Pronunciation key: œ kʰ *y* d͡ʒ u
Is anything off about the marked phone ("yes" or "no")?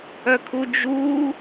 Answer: yes